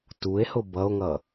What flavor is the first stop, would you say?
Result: plain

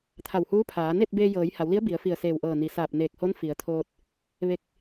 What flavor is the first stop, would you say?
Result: aspirated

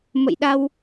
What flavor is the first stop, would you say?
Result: implosive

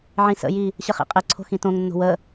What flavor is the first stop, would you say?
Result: ejective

